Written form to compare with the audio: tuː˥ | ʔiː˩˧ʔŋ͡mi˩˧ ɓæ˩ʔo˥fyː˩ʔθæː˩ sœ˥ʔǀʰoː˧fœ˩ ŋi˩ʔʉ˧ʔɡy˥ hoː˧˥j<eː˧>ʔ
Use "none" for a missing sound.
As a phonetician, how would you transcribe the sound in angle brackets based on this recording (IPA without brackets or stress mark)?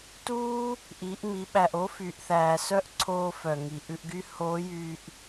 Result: yː˧